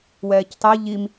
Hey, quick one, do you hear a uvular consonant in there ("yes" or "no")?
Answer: no